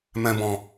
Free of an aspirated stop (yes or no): yes